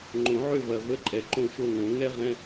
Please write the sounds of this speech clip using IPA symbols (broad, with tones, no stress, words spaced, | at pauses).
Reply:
ŋ͡ǃõ˨˩˦ʕø˥˨vɐ˨˩ və˧˥˧ǃʼɛ˨˩ǃõ˥˨ʃo˥˨ ŋõ˨˩˦ ŋɛ˥ ʁɛ̃˧˥˧